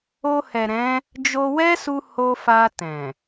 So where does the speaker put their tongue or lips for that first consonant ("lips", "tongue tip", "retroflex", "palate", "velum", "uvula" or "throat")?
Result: throat